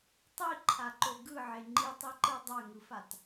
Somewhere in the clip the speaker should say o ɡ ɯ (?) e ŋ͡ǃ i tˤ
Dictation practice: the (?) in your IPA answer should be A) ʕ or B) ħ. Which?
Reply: A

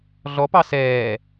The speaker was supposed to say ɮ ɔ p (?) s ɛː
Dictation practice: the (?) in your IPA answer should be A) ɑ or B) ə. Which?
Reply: A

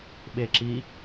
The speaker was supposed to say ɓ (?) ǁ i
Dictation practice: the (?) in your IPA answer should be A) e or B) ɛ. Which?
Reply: A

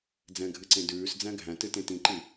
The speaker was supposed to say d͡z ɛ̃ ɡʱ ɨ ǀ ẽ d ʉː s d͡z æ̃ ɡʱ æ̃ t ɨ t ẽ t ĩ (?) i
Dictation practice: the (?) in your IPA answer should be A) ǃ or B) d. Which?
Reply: A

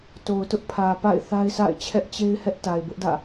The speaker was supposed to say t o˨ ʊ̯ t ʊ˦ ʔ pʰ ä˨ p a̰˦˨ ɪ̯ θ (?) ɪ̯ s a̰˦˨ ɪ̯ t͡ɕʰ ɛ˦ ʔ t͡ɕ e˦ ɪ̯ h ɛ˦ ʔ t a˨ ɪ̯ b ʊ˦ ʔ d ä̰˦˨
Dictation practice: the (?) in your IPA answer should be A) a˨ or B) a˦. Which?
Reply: B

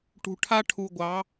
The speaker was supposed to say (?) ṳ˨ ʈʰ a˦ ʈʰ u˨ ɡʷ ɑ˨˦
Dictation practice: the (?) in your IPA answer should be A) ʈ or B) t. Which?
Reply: A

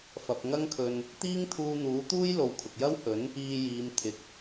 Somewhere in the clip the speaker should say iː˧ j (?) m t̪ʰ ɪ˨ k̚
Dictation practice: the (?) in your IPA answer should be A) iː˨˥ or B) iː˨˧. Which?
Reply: B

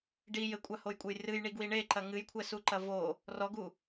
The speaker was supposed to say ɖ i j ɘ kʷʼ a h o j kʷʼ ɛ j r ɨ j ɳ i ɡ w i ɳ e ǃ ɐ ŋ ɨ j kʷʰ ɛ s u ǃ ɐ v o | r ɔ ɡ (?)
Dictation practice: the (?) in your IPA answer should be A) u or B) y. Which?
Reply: A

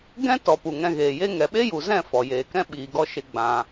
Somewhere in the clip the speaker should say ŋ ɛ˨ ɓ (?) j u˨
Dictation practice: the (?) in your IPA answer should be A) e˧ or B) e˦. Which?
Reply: B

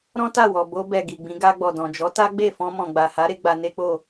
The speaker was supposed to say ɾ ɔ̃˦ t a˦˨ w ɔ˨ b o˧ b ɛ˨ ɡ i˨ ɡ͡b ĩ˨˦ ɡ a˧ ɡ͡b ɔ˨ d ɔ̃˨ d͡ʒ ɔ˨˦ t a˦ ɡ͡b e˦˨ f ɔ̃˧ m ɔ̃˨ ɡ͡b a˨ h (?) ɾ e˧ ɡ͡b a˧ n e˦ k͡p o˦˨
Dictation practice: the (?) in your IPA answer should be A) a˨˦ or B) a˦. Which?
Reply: A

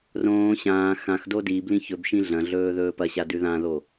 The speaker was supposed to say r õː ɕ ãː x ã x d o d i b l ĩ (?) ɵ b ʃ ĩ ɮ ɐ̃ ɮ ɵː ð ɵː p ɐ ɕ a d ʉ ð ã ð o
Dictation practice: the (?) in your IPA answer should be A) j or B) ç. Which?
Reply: B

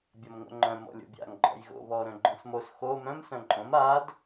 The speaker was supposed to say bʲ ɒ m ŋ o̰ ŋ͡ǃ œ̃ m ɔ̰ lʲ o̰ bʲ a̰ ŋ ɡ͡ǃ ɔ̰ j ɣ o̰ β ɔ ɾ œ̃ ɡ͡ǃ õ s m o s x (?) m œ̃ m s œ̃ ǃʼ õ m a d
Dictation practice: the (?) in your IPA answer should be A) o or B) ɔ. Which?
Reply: A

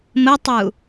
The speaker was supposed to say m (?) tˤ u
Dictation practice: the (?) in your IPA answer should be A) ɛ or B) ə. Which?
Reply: B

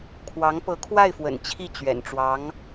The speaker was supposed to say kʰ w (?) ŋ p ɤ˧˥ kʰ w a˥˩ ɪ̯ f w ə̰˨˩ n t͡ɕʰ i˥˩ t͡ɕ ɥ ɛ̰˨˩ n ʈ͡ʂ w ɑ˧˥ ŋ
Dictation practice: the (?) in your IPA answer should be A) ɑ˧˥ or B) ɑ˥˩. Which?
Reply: A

